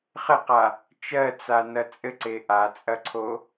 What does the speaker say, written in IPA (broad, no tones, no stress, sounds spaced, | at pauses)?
χ ɘ q a | t͡ʃ ɜ t͡s a n ɐ t͡sʼ ɘ ǀ e ʔ a t͡sʼ ɐ ǀʰ o